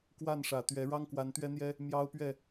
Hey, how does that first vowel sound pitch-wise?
falling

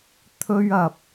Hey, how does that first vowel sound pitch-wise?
high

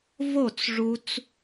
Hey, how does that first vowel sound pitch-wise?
falling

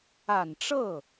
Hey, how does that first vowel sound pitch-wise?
low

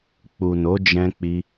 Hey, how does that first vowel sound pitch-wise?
low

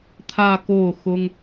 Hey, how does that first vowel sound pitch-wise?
falling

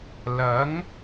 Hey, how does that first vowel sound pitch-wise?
rising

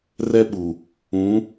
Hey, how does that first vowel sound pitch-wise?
high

